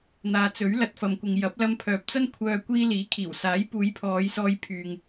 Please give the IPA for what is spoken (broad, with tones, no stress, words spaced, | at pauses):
n̪aː˨˧t͡sɵ˨˥ɥlɐ˧t̚ fɐ˨mkʷɪ˨ŋjɐ˨˥p̚ lɐ˧mpʰœː˨p̚t͡sɐ˥n kʷʰœː˧ kʷiː˧ liː˨˥kʰiː˨˩wsaː˨˥j puː˨˧jpʰɔː˨˧j sɔː˧j pʰyː˨ŋ